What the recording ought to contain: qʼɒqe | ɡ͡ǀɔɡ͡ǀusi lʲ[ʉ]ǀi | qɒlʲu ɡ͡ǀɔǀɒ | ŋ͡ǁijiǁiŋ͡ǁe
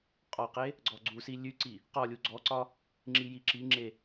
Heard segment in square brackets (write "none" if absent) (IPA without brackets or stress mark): ʉ